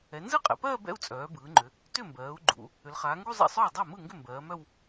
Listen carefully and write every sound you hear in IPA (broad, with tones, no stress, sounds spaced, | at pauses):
ɛ˩˧ n z ɯ˥˧ qʼ ɛ̰˩˧ p ɜː˥˧ b ɛ̰˥˧ u̯ t͡sʼ œː˩˧ b ɯː˩˧ ŋ͡ǃ ʏ˩˧ | t ʏ˥˩ m b ɜː˩˧ u̯ ɡ͡ǃ ṵ˩˧ | ʏ˩˧ l χ aː˩˧ ŋ ɡ u˥˧ zˤ ɛ̰˥˩ sˤ œː˥˩ dˤ a˥˩ m ɯ˥˩ ŋ ɡ ʏ˥˩ m b ɜː˩˧ m œ˥˧ w